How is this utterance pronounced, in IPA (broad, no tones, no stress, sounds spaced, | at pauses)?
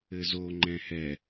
ɘ z o ŋ͡ǃ ɛ̃ h ɛ